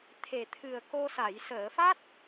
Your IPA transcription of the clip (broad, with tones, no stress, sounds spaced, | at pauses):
t̪ʰ e˨˩ t̪ʰ ɨ˨˩ ə̯ k o˧ s a˨˩˨ j s əː˨˩˨ f a˦˥ t̚